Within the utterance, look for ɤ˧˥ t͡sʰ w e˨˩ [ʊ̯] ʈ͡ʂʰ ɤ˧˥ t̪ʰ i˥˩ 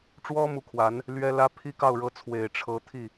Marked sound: incorrect: ɪ̯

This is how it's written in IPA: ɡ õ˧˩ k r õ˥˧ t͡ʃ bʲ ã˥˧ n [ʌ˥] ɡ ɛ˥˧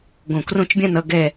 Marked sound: incorrect: ʌ˥˧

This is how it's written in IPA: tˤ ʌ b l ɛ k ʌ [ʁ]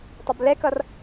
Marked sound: incorrect: r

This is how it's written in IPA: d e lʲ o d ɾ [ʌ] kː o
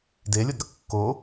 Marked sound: correct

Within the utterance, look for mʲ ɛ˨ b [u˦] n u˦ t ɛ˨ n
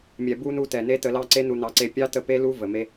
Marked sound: correct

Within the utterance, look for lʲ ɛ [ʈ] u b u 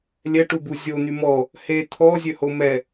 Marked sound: correct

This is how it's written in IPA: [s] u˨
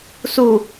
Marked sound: correct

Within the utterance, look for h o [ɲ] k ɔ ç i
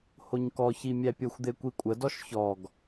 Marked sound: correct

